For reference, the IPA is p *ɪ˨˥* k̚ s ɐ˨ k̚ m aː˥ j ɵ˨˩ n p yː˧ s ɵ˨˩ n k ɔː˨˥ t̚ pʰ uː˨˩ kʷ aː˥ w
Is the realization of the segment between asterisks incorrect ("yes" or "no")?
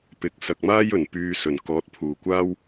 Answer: no